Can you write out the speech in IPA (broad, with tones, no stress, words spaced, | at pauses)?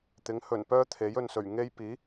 t̪ɪ˨˥ŋ hɵ˨˩n pœː˥t̪ʰe˨˥jɵ˨nsɵ˨˩ɥ ŋe˥j piː˨˥